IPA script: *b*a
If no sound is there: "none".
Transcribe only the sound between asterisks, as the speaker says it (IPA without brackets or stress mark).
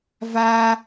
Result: v